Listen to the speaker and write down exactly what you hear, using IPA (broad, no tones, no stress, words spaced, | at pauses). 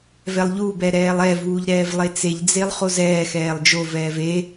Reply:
vɛlˠʎubɛ ɾɛːlˠɛvuːʎ ɾɛːvlˠet͡seʎd͡zelˠ χozɛːxɛːlˠ d͡ʒovɛːv e